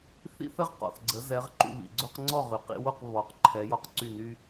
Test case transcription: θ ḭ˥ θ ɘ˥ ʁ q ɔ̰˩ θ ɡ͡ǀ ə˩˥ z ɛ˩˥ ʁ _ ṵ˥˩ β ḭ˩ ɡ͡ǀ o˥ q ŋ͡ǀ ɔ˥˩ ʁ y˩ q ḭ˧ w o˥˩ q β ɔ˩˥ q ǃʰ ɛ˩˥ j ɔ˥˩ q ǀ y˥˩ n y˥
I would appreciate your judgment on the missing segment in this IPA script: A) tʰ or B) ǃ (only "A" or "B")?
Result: B